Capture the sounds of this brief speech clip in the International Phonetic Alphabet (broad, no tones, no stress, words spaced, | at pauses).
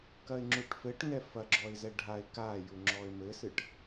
kɐɪ̯ŋ͡ǁuʈfɘʈ ŋɛfɐ ɡ͡ǁɔɪ̯zɛɖʱaɪ̯ kajuŋ͡ǁɔɪ̯ mɘsɨʈ